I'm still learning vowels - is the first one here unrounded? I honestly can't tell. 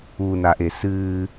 no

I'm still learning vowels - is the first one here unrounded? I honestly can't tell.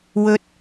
no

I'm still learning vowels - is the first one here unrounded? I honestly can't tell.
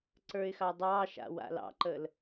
yes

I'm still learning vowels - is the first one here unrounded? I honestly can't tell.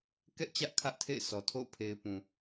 yes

